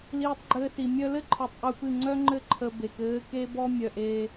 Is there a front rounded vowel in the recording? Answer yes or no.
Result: yes